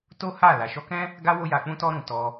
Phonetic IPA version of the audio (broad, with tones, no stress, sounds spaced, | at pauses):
t o˦ h a˦˨ l a˨ ʃ ɔ˧ k ɛ̃˦ | ɡ a˦ w o˦ j a˧ k͡p ũ˦ t ɔ˦ ɾ ũ˧ t ɔ˧